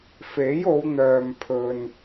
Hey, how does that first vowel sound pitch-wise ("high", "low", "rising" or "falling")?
rising